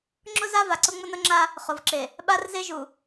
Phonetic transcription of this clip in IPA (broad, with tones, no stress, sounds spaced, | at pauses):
ŋ͡ǁ ʊ˦ z a˦ v a˨ ǀ ʊ˦ ŋ͡m ʊ˦ n ʊ˦ ŋ͡ǁ a˦ | χ ʊ˨ v ǁ e˨ | ɓ a˦ r z e˦ ʒ u˨